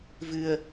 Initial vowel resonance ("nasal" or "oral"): oral